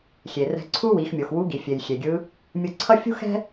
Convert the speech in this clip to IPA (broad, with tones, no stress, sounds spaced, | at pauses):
xʲ e˩ r ɛ̤˧ ǀʰ u˥ w i˩˧ x mʲ o˩ x w u˧˥ ɡ i˩ fʲ e˩ j xʲ e˩ ɡʲ ɯ˧˥ | mʲ ɯ˧ ǀʰ ʌ˥ fʲ ṳ˥ x ɛ̤˥